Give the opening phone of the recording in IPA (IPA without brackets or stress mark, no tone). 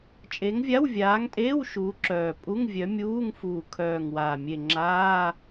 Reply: t͡ʃʼ